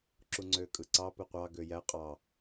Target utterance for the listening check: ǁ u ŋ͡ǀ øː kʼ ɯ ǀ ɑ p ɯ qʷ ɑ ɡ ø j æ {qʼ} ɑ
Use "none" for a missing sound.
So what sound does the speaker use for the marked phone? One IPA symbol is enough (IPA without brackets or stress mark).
qʼ